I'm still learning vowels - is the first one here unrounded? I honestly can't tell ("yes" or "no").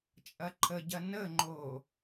yes